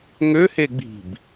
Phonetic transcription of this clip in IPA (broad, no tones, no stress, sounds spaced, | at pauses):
ŋ ø h e ɡ͡b i̤ b